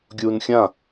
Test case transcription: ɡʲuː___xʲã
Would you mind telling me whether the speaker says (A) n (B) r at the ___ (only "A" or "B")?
A